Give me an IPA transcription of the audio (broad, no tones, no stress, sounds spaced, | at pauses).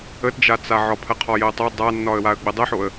ə t d͡ʒ a t͡s a ʕ ɒ pʰ ɜ qʰ ɒ j ɜ tˤ o dˤ a nː ɒ ə̯ w a ə̯ ɡ͡b ə dˤ ɜ ħ o ə̯